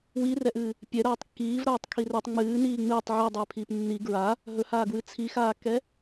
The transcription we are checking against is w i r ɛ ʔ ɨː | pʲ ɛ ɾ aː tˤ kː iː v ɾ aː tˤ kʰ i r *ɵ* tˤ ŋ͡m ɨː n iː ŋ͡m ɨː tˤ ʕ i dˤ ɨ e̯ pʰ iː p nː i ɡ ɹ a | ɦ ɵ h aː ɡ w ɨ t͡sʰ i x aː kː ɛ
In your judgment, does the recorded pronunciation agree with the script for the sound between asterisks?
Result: yes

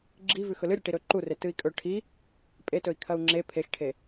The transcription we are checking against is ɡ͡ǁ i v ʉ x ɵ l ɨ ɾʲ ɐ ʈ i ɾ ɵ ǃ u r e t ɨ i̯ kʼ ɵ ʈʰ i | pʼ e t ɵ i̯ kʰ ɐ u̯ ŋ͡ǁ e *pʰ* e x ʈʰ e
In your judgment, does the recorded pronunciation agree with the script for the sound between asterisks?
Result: yes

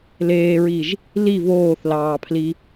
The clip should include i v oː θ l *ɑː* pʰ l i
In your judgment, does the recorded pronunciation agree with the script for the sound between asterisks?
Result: yes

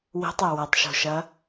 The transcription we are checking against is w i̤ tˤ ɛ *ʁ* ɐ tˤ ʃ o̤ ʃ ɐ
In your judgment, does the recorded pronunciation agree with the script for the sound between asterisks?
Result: no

